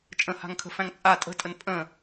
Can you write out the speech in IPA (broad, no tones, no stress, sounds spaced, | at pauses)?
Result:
t͡ʃʼ ə̃ h a̤ ŋ kʰ ə̤ f æ̃ ŋ t͡sʼ a tʼ ə̤ tʼ ə n pʼ ə̃